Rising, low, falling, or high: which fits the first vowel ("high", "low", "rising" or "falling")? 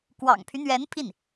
low